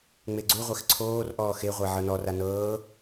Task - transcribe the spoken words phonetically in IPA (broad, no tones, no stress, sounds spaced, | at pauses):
ŋ͡m e ɡ͡ǀ u ʁʷ ɛ x ǀʰ oː r ʔ ɔː x e ʁʷ ɛ ʕ ɤ n ɔ r a n ɤː